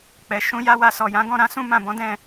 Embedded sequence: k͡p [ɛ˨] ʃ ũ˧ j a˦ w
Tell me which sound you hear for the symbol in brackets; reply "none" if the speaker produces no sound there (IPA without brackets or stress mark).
ɛ˨